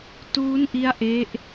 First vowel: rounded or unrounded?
rounded